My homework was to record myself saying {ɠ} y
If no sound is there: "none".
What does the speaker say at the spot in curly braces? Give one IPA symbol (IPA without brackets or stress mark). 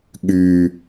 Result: ɠ